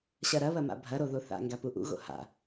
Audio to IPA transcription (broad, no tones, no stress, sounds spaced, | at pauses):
ɕ ɐ ɾ ɐ β ɐ m a̰ bʱ ɐ ɾ o ð o θ a̰ ŋ ɡ a p u ʔ ṵ ɣ o̰ h a̰